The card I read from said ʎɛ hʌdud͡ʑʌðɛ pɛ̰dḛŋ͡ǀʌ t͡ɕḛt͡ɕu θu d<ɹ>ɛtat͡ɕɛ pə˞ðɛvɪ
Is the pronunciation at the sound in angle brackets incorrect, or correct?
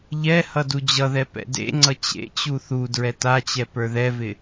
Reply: correct